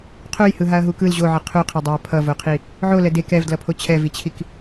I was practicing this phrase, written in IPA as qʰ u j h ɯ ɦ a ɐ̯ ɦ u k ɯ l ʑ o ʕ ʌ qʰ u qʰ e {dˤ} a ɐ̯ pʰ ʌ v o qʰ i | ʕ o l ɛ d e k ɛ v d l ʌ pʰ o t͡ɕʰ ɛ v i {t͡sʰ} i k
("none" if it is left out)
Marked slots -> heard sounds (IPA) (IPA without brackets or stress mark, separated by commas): dˤ, t͡ɕʰ